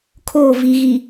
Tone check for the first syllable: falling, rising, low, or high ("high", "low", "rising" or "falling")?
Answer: falling